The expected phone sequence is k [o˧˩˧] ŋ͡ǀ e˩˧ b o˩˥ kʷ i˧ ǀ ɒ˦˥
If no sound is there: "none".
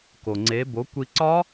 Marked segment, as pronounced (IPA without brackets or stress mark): o˩